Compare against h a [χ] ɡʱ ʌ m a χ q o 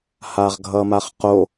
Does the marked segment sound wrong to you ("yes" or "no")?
yes